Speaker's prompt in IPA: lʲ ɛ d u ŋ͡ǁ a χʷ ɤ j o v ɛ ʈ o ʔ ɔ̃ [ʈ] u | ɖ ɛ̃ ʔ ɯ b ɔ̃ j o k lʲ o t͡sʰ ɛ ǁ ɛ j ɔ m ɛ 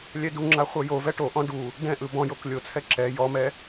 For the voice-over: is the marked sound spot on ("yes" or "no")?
no